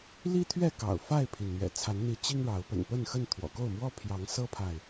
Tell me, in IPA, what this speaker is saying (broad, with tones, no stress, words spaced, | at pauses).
li˦t̪ʰɥɛ˥˨kɑ̰˨˩ʊ̯ fa˥˨ɪ̯pʰi˩nn̪ɥɛ̰˨˩ t͡sʰa˨˦nn̪i˨˦ t͡ɕi˦ŋɻɑ˨˦ʊ̯ pə̰˨˩npə˥˨nxə˥˨n t̪ʰwɔ̰˨˩ko˥˨ʊ̯mwɔ˦pʰjɑ˨˦ŋ sɤ˦pʰa˨ɪ̯